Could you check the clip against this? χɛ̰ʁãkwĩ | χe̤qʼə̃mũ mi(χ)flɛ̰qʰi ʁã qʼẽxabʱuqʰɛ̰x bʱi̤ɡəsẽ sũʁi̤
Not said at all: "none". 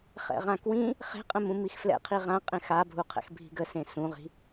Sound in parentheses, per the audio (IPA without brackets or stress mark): x